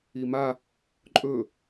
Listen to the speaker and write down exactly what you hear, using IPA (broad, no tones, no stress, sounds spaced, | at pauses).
i m a | ǃʼ ɵ